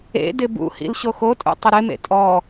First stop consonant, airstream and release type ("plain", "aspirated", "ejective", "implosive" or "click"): plain